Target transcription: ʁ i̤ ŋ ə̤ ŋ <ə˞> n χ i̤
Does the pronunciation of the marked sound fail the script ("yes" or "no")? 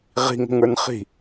no